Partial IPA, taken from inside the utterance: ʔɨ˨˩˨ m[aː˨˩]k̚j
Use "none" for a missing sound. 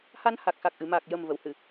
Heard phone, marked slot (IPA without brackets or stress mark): aː˨˩